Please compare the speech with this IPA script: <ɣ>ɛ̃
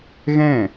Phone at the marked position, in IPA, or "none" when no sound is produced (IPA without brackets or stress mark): ɣ